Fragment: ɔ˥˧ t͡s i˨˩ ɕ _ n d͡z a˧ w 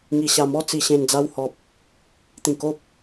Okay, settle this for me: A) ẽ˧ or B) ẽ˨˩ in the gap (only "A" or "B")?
B